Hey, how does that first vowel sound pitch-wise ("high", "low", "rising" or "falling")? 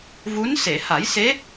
rising